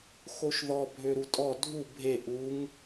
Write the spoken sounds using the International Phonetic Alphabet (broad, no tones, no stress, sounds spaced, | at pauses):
x o ʃ ð ɔ bʱ ø ɾ u tʼ ɔ dʱ u bʱ e ʔ u ŋ